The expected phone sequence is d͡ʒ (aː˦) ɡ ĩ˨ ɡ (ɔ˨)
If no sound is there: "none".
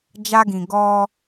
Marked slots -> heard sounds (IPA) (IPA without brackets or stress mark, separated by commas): a˦, ɔ˦